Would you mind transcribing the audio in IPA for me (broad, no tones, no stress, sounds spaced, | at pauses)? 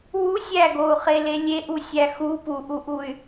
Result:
w u sʲ æ ɡ o u̯ χ e l e lʲ e ʔ u sʲ æ x u p u ʔ u ʔ u y̯